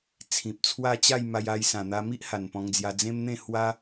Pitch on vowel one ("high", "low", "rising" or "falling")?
low